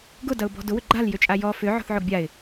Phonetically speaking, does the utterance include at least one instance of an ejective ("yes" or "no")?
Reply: yes